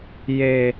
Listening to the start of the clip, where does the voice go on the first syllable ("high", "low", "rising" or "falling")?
high